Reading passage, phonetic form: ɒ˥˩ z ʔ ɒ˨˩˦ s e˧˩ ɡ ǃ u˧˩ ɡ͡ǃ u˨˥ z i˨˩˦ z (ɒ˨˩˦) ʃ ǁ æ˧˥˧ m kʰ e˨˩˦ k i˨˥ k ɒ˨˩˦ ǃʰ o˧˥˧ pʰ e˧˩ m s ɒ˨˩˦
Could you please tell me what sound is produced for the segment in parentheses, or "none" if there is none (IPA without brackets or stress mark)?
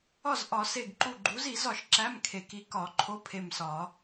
ɒ˨˩˦